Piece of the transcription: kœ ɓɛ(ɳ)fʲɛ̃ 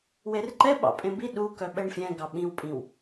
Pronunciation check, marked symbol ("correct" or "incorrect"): correct